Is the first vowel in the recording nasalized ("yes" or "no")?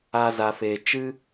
no